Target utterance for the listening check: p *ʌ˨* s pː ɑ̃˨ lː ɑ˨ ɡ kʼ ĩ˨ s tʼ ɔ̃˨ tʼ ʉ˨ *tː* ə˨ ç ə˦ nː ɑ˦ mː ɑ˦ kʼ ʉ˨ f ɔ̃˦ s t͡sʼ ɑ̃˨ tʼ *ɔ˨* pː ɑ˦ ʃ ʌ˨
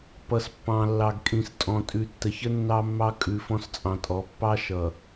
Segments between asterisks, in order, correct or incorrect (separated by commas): correct, correct, incorrect